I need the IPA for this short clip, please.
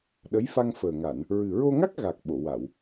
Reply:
ɗ ə˧˥ j f a˧ ŋ f əː˨˩ ŋ a˨˩˨ n | ɹ ɨ˨˩ ɹ o˧ ŋ a˦˥ k̚ ɣ a˨˩ k̚ ɓ o˨˩˨ w a˨˩˨ w

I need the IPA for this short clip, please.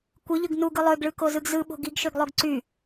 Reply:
kʷ ɯ ʎ ɯ ɡ n u ɡ ɯ lˠ ø ɡ ɭ ɯ k o z ɯ ɡ z ɯ ɓ o̤ ɡ i ɡ ʃ ø ɡ lˠ o ɡ ǀ y

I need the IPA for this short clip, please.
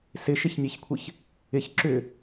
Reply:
s ɪ ʃ ɪ ç nʲ ɛ ç kʷʰ ɪ ç | ɪ ç ǁ ʏ

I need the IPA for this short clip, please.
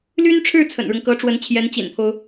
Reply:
l y˥ n ʈ͡ʂʰ ɻ̩˥˩ t͡sʰ ə̰˨˩ n ɻ ʊ˦ ŋ k ɤ˧˥ ʈ͡ʂ w ə˧˥ n t͡ɕʰ j ɛ˧˥ n t͡ɕ ḭ˨˩ n pʰ o˦ ʊ̯

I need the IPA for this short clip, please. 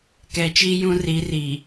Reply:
k ɛ˨ t͡ʃ i˦ j ũ˦ r i˨˦ r iː˨

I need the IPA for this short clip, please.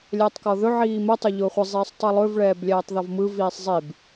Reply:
lʲ ɛː tˤ k ɔ ð ɵ ʕ iː m ə tˤ ɵ ʎ ʊː χʷ ɪ zˤ iː sˤ tˤ ɯ lˠ ɵ v ɭ ɛː b lʲ ɛː tˤ ð ɔ v m ɯ v iː sˤ zˤ i b

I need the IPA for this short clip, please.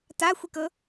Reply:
t a xʷ i k ɤ

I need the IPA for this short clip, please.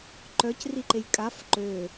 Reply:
ǃ œ c r i ǃ e j kʼ a f ǃ ø

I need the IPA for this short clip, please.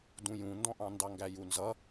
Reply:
d ũ j ũ n d ɔ̃ ʔ ɑ̃ n d ɑ ŋ ɡ æ j u n z ʌ

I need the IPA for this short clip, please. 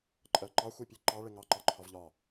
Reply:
ǃʼ ɜ ǃ ɑ xʷ i pʲ e ǃ ɑ ɭ e ŋ ɑ ǃ ɑ ǃʰ ɒ v ʎ ɒ

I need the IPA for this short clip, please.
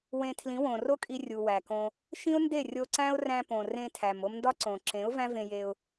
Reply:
w ẽ˧ tʰ l ĩ˨˦ w õ˨ r o˦ kʼ i˧ rʲ u˨ w æ˨ k õ˧ | ʃ ĩ˦ ʊ̯ n d e˦˨ rʲ o˧ ǀ æ̃˦ ʊ̯ r æ̃˧ p õ˨ r ẽ˧ tʰ æ˨ m o˧ m n d ɒ˦ ǀ õ˨ ǁ ẽ˨˦ ʊ̯ v æ̃˦ v ẽ˧ j e˧ ʊ̯

